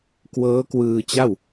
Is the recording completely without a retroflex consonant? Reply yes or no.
yes